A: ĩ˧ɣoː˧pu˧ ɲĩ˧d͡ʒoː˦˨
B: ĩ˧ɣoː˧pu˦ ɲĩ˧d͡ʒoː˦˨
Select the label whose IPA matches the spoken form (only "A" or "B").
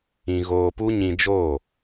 B